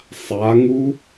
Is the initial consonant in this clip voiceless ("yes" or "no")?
yes